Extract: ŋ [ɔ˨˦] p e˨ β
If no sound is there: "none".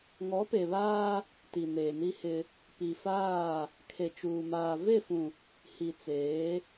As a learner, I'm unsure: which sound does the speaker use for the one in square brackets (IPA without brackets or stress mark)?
ɔ˨˦